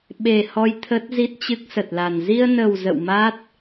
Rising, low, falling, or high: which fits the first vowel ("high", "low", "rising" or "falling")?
low